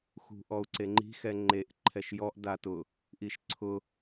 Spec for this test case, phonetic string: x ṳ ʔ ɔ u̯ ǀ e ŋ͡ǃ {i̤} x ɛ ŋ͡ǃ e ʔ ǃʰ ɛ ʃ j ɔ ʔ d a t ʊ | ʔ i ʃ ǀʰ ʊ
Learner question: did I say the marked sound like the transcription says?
yes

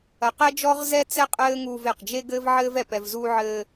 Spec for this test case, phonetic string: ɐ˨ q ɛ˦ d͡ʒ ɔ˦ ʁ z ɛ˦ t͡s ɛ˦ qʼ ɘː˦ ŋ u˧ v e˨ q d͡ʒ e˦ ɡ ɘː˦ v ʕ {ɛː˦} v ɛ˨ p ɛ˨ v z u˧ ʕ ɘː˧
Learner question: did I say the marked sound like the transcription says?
no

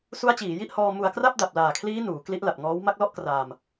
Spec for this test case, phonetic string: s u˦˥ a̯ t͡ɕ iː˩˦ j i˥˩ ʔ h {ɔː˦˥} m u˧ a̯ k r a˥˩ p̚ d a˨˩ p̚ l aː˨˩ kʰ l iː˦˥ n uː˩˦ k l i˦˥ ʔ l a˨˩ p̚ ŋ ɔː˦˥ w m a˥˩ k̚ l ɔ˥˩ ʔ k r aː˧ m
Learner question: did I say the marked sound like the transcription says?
no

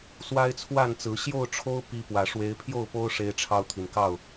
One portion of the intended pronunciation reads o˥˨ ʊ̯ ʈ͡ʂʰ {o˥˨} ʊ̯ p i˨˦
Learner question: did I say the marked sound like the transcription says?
no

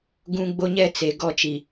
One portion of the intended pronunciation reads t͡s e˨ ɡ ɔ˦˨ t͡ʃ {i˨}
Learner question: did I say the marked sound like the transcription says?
yes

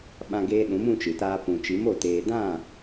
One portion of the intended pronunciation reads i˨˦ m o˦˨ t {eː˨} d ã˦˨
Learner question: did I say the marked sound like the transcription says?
yes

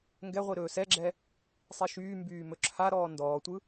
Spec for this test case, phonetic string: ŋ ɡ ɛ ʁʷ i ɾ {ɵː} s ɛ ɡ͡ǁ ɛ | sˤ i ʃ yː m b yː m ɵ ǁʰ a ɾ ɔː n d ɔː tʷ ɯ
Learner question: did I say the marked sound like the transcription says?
yes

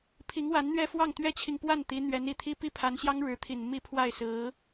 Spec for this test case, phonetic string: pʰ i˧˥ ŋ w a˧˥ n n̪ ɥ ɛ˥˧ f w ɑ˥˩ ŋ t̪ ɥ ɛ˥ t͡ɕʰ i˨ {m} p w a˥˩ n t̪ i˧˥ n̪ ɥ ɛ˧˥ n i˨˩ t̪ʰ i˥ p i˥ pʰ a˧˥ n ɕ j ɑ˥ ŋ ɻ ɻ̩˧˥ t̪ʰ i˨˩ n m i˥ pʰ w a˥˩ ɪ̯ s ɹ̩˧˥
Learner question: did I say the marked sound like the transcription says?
no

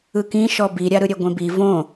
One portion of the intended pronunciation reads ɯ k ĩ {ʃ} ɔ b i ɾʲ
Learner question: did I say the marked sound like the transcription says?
yes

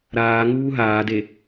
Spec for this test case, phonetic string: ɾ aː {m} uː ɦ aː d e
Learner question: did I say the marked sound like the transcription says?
no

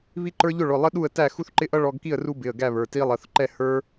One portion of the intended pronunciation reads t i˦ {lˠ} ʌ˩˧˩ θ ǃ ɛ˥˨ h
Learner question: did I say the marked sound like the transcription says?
yes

